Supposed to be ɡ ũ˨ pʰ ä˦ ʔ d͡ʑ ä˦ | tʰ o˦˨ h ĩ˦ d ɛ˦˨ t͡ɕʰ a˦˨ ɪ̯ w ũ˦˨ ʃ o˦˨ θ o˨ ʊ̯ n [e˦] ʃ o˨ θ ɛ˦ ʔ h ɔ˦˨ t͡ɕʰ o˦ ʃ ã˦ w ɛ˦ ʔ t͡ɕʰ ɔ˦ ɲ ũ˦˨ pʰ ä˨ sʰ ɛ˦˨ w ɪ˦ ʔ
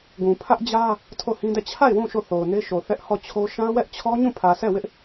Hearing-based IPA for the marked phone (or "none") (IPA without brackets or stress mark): e˦